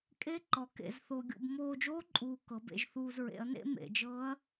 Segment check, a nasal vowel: absent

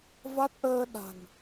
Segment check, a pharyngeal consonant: absent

